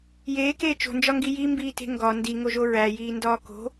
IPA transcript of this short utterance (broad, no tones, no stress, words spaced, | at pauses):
jeːkeː t͡ʃo̤nd͡ʒɒŋɡi jimbiːte̤ ŋɡɒ ndiŋoʒo ɹæjiːndɒː ko̤